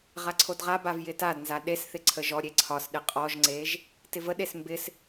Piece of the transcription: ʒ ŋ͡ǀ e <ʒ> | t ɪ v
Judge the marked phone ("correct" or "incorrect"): correct